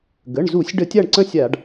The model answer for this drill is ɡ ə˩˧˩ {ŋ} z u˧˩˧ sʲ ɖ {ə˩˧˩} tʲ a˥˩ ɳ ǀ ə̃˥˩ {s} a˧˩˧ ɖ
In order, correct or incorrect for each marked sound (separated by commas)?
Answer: incorrect, incorrect, incorrect